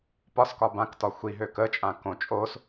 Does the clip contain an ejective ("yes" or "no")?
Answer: yes